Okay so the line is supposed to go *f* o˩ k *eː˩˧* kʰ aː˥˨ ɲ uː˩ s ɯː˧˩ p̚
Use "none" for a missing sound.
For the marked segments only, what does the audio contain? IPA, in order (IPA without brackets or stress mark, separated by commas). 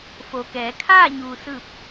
f, ɛː˩˧